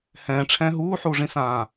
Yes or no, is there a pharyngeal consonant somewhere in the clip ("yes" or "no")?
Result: yes